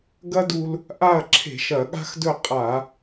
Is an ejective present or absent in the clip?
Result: present